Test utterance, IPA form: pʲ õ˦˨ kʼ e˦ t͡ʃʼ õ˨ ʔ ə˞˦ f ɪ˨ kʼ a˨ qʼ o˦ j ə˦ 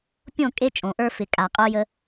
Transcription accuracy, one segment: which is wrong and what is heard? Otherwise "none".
none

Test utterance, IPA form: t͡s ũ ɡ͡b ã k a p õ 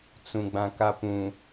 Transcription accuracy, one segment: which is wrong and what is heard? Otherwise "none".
õ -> ũ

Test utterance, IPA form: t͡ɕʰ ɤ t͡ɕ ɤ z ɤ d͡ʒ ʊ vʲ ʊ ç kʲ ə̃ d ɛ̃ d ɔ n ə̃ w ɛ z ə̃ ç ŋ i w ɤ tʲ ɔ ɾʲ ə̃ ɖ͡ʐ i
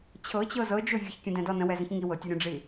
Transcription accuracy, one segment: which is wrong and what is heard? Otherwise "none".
none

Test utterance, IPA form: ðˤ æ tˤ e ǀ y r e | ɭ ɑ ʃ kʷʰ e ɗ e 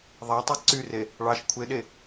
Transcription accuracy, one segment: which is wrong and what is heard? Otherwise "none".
none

